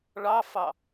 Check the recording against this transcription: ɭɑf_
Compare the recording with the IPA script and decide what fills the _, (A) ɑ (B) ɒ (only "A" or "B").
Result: A